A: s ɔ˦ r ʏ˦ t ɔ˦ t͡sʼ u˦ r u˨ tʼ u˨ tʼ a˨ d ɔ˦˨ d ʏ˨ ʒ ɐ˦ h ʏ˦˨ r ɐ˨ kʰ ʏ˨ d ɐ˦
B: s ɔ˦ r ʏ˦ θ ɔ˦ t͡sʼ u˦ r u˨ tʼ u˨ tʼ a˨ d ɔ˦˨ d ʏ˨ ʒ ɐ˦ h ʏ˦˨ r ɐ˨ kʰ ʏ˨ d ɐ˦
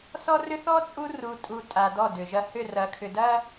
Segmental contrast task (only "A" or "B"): B